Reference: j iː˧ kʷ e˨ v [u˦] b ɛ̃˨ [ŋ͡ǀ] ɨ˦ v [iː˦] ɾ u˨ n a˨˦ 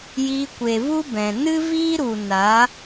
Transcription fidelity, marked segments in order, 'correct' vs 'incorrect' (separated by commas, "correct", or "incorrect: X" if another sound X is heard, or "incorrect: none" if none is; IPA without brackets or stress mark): correct, incorrect: n, correct